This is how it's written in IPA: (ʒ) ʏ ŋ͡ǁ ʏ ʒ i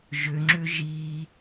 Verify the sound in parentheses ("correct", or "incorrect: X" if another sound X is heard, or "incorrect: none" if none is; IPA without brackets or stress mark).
correct